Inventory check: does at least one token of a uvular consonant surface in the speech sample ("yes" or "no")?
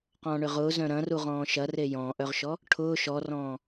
yes